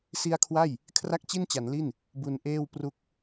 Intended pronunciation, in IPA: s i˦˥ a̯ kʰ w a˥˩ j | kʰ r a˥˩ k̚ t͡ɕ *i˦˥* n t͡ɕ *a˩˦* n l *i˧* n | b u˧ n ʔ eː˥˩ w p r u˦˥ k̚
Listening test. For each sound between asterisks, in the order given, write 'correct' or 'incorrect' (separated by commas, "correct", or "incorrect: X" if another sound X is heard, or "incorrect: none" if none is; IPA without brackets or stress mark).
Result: incorrect: i˥˩, correct, incorrect: i˥˩